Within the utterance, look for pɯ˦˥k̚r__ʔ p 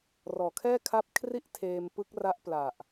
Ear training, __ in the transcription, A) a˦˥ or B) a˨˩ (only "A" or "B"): A